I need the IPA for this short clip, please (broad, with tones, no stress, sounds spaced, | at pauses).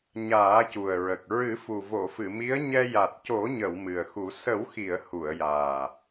ɲ aː˨˩˦ c u˨˩ ə̯ ɹ ə˨˩ k̚ ɹ ɨ˨˩˦ f u˨˩ v o˨˩˨ f ɨ˨˩˨ m i˧˥ ə̯ ɲ ɛ˧ j a˨˩ t̚ c o˨˩˦ ɲ ə˨˩˨ w m ɨ˨˩ ə̯ x u˨˩˦ s ə˨˩˦ w x i˨˩˨ ə̯ h u˨˩˨ ə̯ j aː˨˩